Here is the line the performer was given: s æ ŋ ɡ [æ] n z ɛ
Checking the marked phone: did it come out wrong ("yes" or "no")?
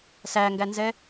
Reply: no